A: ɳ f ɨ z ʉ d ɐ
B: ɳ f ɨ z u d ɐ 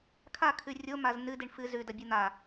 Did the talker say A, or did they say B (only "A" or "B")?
A